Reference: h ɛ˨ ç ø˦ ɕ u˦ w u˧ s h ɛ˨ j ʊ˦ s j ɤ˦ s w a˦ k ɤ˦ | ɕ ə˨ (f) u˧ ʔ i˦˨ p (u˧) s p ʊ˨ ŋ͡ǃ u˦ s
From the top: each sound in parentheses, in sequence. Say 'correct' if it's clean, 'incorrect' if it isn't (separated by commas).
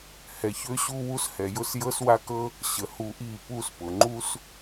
incorrect, correct